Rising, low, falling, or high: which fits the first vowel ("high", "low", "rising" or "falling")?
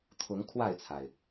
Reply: rising